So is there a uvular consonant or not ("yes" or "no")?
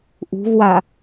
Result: no